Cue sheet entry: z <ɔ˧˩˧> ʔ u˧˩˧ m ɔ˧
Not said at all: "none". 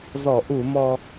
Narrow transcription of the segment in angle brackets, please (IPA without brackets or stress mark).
ɔ˧˩˧